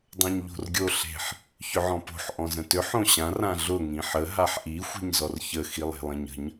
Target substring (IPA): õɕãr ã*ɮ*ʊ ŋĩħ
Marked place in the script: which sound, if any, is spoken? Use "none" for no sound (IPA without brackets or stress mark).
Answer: ɮ